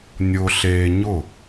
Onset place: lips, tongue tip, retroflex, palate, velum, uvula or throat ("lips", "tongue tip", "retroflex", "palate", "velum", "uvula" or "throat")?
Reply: tongue tip